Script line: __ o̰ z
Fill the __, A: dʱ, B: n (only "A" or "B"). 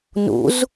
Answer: B